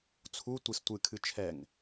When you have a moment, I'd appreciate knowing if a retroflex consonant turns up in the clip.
no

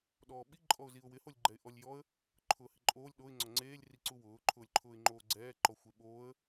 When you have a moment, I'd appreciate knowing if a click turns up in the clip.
yes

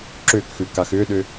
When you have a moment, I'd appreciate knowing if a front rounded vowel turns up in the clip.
yes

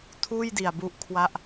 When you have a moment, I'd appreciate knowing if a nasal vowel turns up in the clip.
no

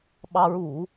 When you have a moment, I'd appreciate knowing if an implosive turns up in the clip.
yes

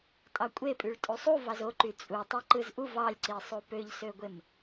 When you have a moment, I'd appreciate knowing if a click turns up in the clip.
yes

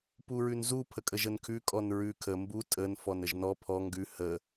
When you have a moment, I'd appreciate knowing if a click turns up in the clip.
no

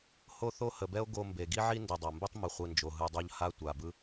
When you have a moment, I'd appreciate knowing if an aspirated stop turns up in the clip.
no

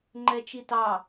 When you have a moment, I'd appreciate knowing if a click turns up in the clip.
yes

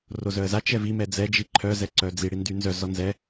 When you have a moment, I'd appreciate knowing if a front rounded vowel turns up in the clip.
yes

